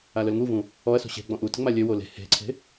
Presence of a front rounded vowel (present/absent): present